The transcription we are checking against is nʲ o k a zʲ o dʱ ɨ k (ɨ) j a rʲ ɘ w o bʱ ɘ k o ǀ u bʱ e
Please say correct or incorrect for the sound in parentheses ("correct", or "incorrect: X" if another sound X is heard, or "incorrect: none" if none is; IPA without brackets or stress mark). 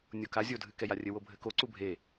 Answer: incorrect: ɛ